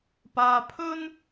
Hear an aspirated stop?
yes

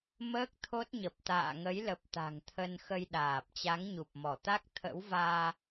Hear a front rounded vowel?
no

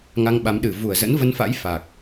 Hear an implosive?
yes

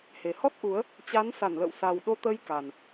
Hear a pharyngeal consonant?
no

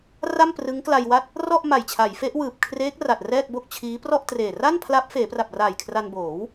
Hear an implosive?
no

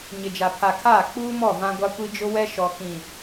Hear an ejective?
no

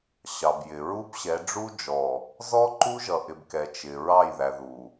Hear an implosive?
no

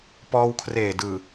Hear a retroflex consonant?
no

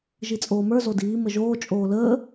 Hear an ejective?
yes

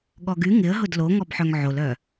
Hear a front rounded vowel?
yes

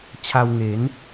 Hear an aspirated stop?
yes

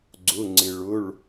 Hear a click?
yes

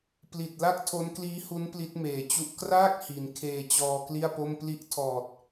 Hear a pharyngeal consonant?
no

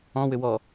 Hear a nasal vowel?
yes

